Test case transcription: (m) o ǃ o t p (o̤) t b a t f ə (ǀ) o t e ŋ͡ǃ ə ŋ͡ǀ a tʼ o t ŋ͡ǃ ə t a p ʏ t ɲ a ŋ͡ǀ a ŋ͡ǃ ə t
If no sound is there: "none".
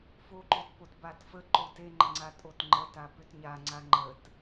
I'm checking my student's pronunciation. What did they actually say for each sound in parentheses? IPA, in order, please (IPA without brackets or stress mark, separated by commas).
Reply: f, o, ǃ